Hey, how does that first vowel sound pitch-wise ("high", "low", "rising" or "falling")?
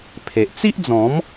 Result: low